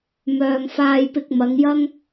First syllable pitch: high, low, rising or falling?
low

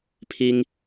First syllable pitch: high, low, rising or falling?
high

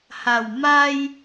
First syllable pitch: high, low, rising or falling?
low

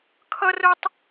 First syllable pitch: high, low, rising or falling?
high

